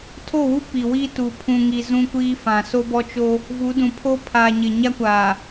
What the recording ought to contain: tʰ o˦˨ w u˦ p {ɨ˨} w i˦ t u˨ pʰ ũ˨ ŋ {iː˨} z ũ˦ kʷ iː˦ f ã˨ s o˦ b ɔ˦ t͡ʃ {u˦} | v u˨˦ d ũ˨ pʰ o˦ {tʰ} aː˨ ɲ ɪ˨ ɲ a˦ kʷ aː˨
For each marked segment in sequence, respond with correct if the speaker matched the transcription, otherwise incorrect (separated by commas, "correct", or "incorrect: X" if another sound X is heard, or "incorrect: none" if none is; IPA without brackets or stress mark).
incorrect: i˨, incorrect: i˨, incorrect: o˦, incorrect: pʰ